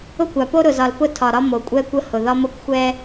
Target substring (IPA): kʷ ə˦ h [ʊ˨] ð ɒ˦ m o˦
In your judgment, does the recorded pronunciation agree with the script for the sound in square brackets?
yes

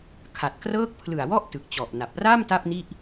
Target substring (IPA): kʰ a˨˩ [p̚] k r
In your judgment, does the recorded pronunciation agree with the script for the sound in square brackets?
no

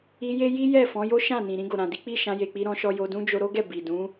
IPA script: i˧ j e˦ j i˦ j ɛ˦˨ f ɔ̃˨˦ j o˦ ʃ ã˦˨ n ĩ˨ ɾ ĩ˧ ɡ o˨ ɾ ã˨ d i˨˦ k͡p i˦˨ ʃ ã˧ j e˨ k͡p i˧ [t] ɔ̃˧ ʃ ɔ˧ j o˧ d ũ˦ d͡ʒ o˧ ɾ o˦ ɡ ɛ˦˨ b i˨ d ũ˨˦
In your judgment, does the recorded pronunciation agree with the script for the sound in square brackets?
no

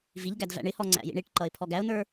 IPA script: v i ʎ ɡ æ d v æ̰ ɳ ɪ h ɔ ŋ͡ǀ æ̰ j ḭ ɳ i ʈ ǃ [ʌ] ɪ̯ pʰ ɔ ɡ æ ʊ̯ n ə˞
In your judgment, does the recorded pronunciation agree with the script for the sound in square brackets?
yes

